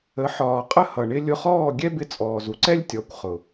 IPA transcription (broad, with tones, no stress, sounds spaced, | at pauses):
ə˨˦ ħ ɒː˨ qʼ ə˦ h ʌ˨ ɳ ɪ˦ lʲ ʊ˧ χ ɔː˦˨ ɡʲ ɛ˦ b ɪ˧ t͡sʼ ɔː˨ z u˦ ǀ ɛ˦ lʲ tʲ ɔ˨˦ kʷ χ ʊ˨